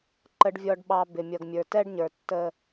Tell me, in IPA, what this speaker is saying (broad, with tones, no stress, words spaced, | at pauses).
ǃə˨ɖvʲɔ˨ɖɓɑ˨ bɪ˨mʲʌ˨ɡmʲə˞˨ tɛ˦ɖɲə˞˨tːə˦